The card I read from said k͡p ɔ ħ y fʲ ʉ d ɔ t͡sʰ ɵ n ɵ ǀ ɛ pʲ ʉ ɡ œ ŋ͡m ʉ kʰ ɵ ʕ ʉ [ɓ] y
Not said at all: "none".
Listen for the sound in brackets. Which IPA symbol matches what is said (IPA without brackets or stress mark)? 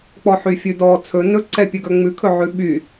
ɓ